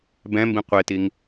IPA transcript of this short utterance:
b ɛ̃ m b ĩ qʷ e t i ŋ

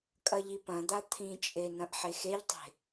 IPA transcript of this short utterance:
kʼ ɐ ʎ i p ɐ̃ d̪ a t̪ʰ ĩ t͡ʃʼ e n ɐ̃ ʔ ħ e x e ʎ tˤ e̤

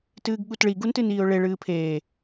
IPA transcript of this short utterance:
t ɨː ɡ ɠ u t ɭ i ɡ u n t ɨ n iː ʊ̯ ɭ e ɭ ɨː pʰ eː

